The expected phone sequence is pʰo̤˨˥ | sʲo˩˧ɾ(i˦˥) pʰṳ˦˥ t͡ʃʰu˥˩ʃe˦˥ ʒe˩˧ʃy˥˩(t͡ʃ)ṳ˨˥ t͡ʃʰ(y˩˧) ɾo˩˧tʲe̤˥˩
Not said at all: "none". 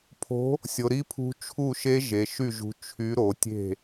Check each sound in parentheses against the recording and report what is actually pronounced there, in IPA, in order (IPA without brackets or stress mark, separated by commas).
i˦˥, ʒ, y˨˥